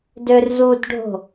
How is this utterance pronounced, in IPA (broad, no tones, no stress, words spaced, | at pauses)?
dørzudɖʱo̤